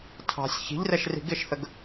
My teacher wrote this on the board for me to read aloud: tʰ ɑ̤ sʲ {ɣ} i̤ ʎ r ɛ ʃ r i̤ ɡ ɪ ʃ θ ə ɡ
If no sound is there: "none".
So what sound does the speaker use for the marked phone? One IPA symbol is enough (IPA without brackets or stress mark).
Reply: ç